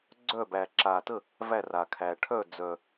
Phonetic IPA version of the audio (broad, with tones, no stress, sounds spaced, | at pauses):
ɡ͡ǀ œ˥˩ b æ˨˩ ǁ a˨˩ t ə˥˩ | v æ˥˩ r a˨˩ kʰ æ˨˩ ʈʰ œ˥˩ d͡z œ˨˩